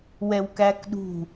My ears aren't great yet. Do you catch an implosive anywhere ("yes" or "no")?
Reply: yes